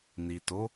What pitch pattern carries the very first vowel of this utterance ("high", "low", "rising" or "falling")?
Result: low